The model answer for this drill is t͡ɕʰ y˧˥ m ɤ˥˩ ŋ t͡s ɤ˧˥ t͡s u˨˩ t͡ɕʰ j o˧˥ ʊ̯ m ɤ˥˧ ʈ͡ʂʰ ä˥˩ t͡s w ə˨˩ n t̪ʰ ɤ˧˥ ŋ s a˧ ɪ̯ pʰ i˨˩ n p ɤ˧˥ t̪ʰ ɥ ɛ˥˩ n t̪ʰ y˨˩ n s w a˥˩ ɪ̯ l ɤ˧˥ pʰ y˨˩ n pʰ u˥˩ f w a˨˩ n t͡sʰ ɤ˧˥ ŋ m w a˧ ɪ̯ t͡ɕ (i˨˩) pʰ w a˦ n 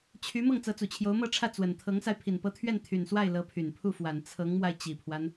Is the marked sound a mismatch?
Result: no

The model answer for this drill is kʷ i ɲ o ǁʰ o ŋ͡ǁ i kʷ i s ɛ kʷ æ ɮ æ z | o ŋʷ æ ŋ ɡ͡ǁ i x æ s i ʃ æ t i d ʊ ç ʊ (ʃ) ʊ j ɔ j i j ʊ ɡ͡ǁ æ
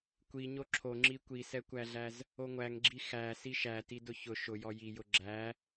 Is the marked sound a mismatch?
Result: no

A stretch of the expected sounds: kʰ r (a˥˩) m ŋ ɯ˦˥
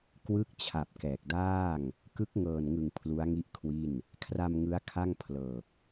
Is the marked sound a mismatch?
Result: yes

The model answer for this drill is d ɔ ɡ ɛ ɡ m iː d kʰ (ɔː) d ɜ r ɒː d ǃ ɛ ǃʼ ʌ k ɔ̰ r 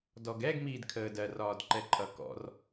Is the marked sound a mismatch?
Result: yes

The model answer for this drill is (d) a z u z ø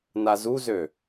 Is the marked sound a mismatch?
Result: yes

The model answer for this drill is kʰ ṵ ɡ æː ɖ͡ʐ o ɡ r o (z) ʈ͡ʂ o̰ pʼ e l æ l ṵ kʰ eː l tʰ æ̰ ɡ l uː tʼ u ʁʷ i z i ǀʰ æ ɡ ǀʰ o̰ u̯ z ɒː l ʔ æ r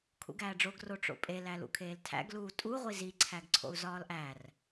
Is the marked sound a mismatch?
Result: yes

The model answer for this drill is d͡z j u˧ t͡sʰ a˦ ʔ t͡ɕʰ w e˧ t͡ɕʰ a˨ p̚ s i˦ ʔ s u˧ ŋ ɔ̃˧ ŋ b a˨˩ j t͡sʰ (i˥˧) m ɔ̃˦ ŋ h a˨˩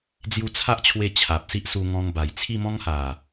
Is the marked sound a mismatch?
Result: no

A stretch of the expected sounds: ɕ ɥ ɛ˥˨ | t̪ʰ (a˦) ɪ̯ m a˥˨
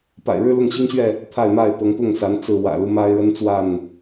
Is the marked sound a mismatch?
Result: yes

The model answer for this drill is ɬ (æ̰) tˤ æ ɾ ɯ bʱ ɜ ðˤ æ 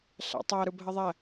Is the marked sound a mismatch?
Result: no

